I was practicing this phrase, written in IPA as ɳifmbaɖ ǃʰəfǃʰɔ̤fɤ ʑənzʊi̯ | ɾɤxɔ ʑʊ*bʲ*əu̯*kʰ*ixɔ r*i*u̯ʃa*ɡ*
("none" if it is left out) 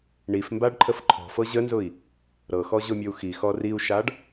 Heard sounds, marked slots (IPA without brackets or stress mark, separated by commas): mʲ, x, i, ɖ